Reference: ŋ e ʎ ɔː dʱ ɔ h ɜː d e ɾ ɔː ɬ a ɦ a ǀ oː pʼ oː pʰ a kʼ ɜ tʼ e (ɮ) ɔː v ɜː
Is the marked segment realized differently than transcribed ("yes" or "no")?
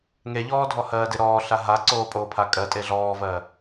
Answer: no